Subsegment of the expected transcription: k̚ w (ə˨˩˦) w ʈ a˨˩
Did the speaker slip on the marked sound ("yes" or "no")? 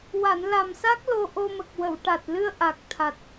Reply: yes